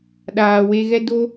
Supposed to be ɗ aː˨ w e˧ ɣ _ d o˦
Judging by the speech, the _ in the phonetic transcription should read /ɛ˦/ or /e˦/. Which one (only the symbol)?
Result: ɛ˦